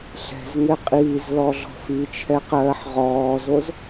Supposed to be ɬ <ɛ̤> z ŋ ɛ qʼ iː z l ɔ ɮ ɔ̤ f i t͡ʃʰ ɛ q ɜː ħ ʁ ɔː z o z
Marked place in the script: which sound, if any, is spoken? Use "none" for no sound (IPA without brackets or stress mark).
ɛ̤